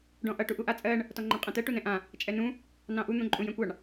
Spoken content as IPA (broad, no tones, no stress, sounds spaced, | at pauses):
ɖ ɔ̃ ʔ ʌ ʈ u ʔ u ʔ a t͡sʼ ɜ ɳ | t ɔ ŋ͡ǃ ɔ ɳ qʼ ɛ̃ t ɜ ʈ u n ɛ̃ ʔ ã | t͡ʃʼ ɛ n ũ | n ɑ̃ ʔ u n̪ ũ ǃʼ ũ j ɛ̃ kʷ ɑ ɳ